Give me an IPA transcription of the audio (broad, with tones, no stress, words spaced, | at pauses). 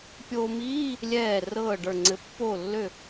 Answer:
pʲoː˧miː˧˥˧ | lʲɛː˧˩ rɤː˧˩ ɖə˞˧˩ŋ͡ǀɘ˧ pːo˧˩lːø˧˩